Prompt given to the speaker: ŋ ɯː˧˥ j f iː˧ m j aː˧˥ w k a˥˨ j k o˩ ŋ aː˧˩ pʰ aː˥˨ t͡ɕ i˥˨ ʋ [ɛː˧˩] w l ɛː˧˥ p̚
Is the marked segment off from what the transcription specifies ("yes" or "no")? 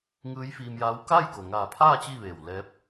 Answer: yes